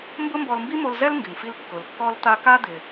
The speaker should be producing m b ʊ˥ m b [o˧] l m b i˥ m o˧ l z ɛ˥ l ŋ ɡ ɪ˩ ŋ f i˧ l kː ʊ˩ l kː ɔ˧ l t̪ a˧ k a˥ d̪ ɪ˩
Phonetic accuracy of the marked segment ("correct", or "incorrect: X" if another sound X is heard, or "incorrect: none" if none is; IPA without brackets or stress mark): incorrect: ɔ˧